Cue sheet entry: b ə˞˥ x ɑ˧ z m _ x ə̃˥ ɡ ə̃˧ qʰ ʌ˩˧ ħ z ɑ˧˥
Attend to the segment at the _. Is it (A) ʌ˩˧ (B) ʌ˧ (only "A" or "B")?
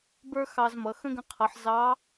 A